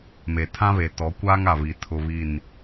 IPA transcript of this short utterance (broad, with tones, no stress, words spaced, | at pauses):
me˨tʰã˦βe˨ tɔ˨˦kʷaː˦ŋa˨βi˨ tʰʊ˦ βi˦˨n